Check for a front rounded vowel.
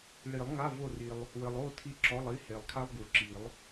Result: absent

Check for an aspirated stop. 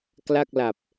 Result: absent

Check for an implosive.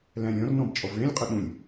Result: present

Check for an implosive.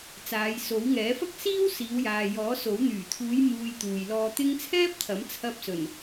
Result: absent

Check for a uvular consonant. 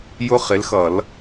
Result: present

